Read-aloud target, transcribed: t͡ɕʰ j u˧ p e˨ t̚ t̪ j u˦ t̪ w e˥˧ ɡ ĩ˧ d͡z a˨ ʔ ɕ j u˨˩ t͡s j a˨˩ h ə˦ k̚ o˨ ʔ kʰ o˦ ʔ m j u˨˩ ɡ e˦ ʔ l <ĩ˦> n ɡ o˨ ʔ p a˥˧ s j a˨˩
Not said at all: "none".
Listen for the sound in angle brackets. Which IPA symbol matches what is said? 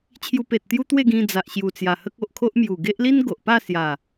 i˦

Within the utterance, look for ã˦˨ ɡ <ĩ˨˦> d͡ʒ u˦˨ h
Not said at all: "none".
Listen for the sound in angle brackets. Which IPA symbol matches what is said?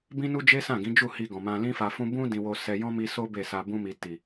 ĩ˨˦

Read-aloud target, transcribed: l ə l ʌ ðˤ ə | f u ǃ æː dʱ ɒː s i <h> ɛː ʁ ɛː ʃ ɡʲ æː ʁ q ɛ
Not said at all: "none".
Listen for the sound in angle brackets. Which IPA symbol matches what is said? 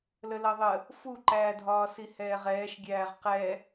h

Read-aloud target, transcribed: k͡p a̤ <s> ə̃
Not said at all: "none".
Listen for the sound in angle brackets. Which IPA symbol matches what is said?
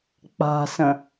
s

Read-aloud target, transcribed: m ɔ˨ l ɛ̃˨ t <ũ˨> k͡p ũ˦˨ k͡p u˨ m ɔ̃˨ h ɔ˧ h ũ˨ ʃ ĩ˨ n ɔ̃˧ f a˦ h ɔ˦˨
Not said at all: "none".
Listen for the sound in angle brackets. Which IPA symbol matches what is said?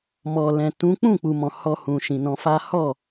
ũ˨˦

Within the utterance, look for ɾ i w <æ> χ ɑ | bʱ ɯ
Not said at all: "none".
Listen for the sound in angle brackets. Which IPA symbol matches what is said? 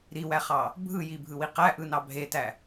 æ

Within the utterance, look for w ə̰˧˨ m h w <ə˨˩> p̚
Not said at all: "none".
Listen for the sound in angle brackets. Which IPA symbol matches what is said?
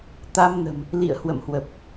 ə˨˩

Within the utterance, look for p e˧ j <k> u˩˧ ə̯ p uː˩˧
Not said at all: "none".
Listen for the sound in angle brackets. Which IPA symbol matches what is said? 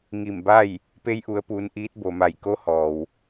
ʔ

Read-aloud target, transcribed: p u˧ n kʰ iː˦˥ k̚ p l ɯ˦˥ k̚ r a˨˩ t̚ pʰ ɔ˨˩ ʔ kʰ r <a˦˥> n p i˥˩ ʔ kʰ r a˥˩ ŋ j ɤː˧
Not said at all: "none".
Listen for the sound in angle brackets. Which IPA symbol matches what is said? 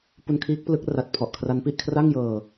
a˦˥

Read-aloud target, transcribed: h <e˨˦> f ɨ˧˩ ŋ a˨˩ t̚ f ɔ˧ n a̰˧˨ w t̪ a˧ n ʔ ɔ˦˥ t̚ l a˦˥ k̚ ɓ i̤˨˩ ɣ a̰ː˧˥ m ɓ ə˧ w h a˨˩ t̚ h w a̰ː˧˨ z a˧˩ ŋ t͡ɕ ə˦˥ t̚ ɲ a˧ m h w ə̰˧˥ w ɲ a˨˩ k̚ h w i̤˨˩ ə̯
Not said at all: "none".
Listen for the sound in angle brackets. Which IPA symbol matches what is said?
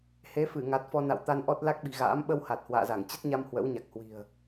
e˨˦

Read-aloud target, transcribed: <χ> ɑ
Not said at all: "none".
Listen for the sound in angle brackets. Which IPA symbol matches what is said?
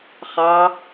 χ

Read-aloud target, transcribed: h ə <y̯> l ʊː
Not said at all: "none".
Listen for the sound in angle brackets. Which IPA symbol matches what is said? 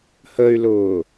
y̯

